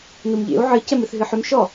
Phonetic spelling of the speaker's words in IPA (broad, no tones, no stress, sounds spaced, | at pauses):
n u m ʎ ḛ u̯ ʕ ɨ c ɛ m ɨ θ ɦ ɨ ħ ʏ m ʃ ɔ